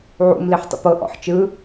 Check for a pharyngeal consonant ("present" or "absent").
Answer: present